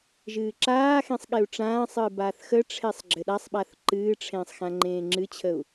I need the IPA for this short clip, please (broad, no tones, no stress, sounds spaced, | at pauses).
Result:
ʒ ɨː ǁ aː x ẽ sˤ ɠ e u̯ ʈ͡ʂ ãː sˤ ɨː b aː θ x ə ʈ͡ʂʰ e sˤ ɡ͡ǁ ɘ ɗ a sˤ ɓ a θ ǃ ɨː ʈ͡ʂʰ ẽː sˤ x ã ŋ͡ǃ ẽː ŋ͡ǁ ɨ t͡ɕʰ ə u̯